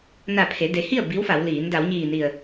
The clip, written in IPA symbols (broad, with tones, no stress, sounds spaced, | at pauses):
n a˧˩ pʰ e˩˧ d e˩˧ h i˥˨ ə̯ b i˧˥ w f a˩˧ w l iː˩˧ n d a˩˧ w ɲ iː˧˩ n i˧˩ ə̯